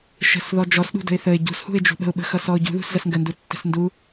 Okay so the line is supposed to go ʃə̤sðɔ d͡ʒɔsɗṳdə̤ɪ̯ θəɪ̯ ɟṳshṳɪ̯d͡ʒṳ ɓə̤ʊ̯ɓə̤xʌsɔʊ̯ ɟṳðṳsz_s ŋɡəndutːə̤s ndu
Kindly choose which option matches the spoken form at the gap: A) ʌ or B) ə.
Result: A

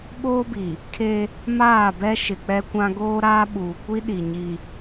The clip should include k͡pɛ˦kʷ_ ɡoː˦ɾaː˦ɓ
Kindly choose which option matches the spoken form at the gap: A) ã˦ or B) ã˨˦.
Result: A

